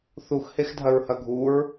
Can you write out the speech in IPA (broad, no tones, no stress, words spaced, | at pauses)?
θuxhexdʱɐɹhɐ ɡʱuɹ